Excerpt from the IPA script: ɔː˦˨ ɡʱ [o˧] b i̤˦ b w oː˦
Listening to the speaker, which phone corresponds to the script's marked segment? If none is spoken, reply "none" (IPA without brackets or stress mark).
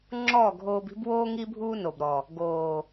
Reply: oː˧